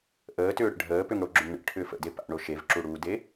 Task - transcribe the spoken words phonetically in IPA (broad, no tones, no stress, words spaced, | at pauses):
ʔəːtʏːɽə̰ ɖʱəːpʏŋɽoɡ͡ǁʏŋ ɳə̰ʈʰʏːf ə̰de pa̰ɳo ʃevǁuɽuːde